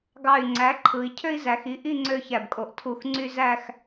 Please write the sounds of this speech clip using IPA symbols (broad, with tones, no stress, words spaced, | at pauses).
ɡɑ˧˩y̯ ŋ͡ǀæ˩˥ǃʰɯ˩˧i̯ cʰø˦i̯zæ˩˧xi˩˥ ʔi˥˨ ŋ͡ǀø˦çæ˧˩bkʼo˧˩ʔ tʰu˧˩xŋ͡ǀy˦ zæ˥˨x